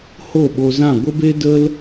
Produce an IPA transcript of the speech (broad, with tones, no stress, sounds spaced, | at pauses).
h o˦˨ ɓ o˧ z ã˦˨ ɡʷ ə˦ b e˦ d ə˦ l